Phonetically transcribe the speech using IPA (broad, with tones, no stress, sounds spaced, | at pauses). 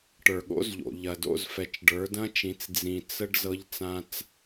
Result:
ʈ ə˞˨ ɠ o̰˦ z ʎ o̰˨ ʎ ɐ˨ d o̰˦˨ z f ɛ˨ t͡ʃ ɖ ə˞˨˦ d ɐ̃˦ t͡ʃ ĩ˨˦ t͡s d͡z ĩ˨ t͡s ə˦ ɖ z ɤ˦ ʎ t͡s ã˦ t͡s